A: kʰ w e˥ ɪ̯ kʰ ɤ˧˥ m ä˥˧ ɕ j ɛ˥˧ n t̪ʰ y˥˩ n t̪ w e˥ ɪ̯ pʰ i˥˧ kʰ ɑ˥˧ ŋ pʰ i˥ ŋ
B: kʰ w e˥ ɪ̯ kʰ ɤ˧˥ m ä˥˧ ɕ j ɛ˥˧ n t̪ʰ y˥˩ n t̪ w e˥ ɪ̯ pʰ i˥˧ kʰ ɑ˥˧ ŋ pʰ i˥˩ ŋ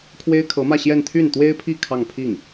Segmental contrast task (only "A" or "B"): B